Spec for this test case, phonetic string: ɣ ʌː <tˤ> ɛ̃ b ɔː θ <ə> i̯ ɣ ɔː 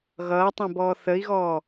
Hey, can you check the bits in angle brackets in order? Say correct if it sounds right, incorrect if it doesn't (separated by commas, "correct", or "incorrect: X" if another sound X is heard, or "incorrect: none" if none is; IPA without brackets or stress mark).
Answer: correct, correct